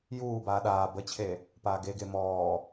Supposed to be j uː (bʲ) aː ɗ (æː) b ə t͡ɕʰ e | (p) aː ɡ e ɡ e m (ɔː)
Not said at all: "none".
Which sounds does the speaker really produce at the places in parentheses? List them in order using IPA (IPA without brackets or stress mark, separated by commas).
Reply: b, aː, p, ɔː